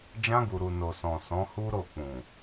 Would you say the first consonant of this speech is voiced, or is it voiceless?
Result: voiced